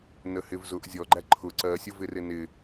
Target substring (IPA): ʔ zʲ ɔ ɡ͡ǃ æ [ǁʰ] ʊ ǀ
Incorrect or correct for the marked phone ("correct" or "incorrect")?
incorrect